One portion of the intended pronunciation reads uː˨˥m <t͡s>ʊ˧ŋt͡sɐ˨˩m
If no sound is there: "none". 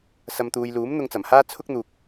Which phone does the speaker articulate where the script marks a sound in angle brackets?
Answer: n̪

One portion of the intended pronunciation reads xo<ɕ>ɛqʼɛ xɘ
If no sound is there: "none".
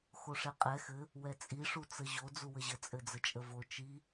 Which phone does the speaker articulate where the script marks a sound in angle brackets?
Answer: ʂ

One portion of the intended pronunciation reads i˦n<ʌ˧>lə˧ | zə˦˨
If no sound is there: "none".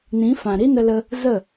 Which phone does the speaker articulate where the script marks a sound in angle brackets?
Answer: ə˧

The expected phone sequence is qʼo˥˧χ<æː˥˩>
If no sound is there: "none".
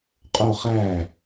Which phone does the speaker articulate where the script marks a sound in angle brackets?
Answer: æː˥˩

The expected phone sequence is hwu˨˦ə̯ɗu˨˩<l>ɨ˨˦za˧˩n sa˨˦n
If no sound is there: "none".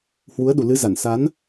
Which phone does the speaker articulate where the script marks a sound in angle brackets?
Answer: l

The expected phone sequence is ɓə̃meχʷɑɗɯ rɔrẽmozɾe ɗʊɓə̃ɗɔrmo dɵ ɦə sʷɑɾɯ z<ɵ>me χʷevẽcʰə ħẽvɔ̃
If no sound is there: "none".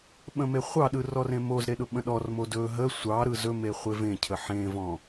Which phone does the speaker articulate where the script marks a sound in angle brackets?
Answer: ɵ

